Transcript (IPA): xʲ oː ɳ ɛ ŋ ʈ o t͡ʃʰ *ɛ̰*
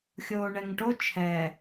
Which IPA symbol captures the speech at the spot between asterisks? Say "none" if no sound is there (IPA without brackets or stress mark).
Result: ɛ